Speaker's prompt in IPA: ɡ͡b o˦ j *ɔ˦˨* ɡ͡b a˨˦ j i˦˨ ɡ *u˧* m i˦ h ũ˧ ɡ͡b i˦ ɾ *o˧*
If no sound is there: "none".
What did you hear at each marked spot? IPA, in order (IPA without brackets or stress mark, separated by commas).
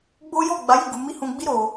ɔ˦˨, u˧, o˧